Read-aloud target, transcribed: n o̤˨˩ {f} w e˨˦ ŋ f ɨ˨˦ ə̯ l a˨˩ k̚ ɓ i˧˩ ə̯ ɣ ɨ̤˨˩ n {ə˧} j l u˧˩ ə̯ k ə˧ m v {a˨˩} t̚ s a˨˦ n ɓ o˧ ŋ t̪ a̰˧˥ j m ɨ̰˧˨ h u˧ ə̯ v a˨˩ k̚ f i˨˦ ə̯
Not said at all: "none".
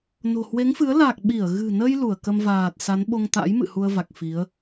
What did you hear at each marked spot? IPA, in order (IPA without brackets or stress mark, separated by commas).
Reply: h, ə˧, aː˨˩